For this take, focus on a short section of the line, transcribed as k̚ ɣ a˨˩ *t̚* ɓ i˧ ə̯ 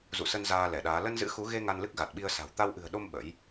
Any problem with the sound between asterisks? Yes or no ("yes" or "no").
no